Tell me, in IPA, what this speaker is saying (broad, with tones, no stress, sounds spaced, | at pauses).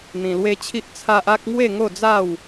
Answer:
n̪ ĩ˧ l w e˦ t͡ɕʰ i˦ ʔ t͡sʰ a˦ ʔ a˦ k̚ ŋ w e˥˧ ŋ o˥˧ d͡z a˥˧ w